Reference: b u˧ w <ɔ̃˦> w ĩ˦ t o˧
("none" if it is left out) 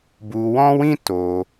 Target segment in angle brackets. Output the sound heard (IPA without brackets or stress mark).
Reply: ɔ̃˦